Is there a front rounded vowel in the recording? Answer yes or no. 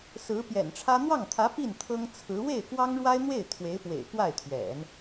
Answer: no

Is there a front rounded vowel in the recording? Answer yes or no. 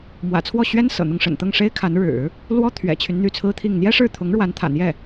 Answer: yes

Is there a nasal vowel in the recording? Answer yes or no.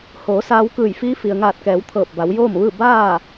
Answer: no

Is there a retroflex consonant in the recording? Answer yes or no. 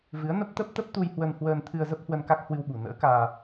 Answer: no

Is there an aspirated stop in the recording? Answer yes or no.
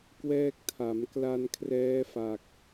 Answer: yes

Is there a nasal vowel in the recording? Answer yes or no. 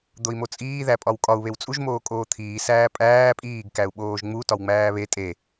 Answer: no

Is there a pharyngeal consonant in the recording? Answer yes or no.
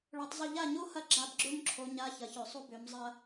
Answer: no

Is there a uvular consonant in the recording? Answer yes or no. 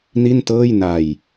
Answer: no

